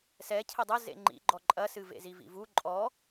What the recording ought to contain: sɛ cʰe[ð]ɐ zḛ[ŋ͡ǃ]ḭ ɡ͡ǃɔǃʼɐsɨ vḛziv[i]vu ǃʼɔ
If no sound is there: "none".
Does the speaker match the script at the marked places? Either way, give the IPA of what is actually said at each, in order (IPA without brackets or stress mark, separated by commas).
dˤ, ŋ͡ǃ, ḭ